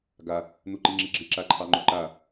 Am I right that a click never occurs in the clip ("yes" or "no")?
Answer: no